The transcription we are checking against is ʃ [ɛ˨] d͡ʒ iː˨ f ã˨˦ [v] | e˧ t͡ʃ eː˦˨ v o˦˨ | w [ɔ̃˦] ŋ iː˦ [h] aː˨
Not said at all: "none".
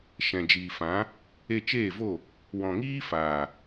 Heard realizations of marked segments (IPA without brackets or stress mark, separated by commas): ɛ̃˨, none, ɔ̃˨, f